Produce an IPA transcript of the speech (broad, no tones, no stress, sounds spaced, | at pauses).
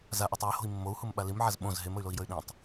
z a ʔ a tˤ j ə h o̤ i̯ mː o u̯ h u m ɓ a l i m ʕ a z ɓ õ z ɦ e m ə y̯ l o i̯ j ə y̯ ɗ ĩ tˤ